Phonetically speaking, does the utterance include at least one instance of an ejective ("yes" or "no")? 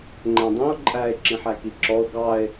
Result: yes